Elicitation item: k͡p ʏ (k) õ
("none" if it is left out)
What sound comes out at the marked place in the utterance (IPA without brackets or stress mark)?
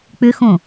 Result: x